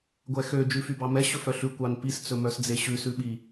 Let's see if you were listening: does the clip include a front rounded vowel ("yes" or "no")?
yes